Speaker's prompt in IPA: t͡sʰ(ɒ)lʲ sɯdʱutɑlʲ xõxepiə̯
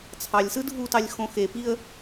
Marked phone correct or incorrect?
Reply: incorrect